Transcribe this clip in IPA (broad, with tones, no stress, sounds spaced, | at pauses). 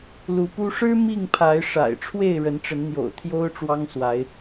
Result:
l u˨˦ p u˦ ʂ ɻ̩˦ m i˥˨ ŋ pʰ a˨˦ ɪ̯ ʂ a̰˨˩ ɪ̯ ʈ͡ʂʰ w e˥˨ ɪ̯ ɻ ə˨˦ n ʈ͡ʂ ə˨˦ n n̪ j o̰˨˩ ʊ̯ t̪ʰ j o˦ ʊ̯ ʈ͡ʂ w ɑ˦ ŋ s w a˨˦ ɪ̯